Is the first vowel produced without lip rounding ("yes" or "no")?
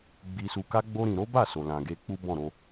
yes